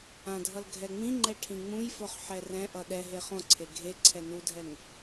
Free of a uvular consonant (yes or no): no